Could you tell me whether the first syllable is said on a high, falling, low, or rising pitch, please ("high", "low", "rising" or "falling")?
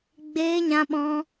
high